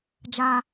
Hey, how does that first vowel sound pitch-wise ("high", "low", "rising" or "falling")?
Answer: high